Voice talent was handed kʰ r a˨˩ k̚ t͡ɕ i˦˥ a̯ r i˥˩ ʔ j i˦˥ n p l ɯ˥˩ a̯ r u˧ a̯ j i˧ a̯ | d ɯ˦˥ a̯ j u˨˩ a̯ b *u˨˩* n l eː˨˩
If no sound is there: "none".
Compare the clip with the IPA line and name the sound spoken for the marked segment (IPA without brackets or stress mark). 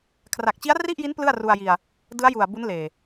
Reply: u˦˥